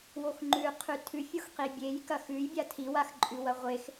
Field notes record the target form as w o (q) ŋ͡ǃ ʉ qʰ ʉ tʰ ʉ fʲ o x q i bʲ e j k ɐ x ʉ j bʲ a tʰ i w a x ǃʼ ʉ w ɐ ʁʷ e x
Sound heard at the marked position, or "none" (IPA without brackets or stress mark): x